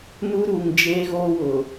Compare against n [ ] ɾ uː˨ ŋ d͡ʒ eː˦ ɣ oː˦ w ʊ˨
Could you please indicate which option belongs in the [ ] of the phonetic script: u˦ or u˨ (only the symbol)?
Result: u˦